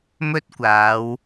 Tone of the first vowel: high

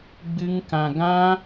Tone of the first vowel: high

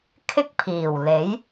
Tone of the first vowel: high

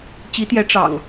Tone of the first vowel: rising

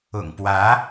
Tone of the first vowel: low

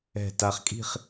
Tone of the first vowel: low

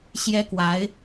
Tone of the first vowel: high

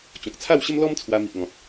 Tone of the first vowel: low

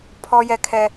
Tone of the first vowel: high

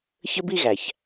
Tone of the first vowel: high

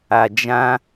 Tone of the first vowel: low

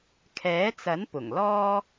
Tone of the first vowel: rising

